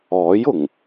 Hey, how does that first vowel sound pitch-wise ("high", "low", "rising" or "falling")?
rising